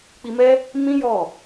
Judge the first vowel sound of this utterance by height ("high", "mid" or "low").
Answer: high